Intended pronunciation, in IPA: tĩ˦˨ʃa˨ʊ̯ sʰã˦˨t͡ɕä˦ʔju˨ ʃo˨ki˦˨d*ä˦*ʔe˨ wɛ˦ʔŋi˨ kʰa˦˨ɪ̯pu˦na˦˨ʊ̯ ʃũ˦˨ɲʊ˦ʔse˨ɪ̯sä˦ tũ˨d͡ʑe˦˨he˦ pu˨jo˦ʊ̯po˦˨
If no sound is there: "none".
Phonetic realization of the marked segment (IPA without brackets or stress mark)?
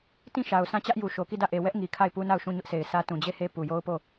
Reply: ä˦˨